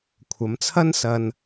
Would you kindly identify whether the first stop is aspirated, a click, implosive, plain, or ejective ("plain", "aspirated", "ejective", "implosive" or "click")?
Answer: aspirated